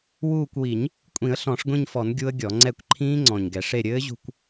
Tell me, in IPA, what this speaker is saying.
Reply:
wuː˦˨kʷwi˨˩˦ɲ | kʷʼĩ˨˩˦ə̯ɬɔ̃˨˩˦ʂɡʷĩ˦˨ɲfɔ˨˩˦n ɡʲu˦˥ə̯ɡʲɔ˨˩˦ ŋ͡ǀɛ˦˨kʷǃʰĩː˦˥ŋ͡ǀɔ̃˨˩ɲɡɛ˨˩˦ʂ e˦˨ɾʲɘː˦˥ʑṳ˦˨kʷ

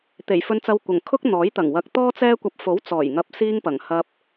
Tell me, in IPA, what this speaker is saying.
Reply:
t̪e˨˩jfɵ˧nt͡sɐ˧wkʷɐ˨˩ŋ kʰʊ˥k̚n̪ɔː˨˥j t̪ɐ˨˩ŋwɐ˨k̚ t̪ɔː˥t͡sɛː˥kʷɐ˧p̚ fo˨˥wt͡sɔː˨˩jŋɐ˨p̚siː˧ŋ pɐ˨˩ŋ hɐ˧p̚

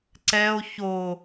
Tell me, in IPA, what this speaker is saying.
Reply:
ǀɛo̯ ço

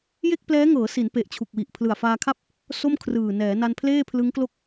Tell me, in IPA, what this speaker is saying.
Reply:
je˥˩k̚ plɛː˦˥ŋɤː˩˦si˩˦n pe˨˩ʔt͡ɕʰu˨˩k̚wi˨˩ʔ pʰlɯ˨˩a̯faː˧kʰa˥˩p̚ | so˥˩mkʰrɯː˨˩ nɛː˩˦na˧n pʰleː˥˩pʰlɯ˦˥ŋklo˥˩k̚

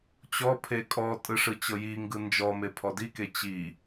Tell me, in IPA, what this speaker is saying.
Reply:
t͡ɕɔpʰe kʼɔtʼɯ ʂɯt͡ɕɤjiŋɡɯ nd͡ʒɔme pʰɔdike t͡ɕi

